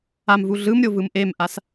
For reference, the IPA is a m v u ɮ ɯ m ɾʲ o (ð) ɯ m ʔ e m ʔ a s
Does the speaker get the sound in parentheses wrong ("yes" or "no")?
yes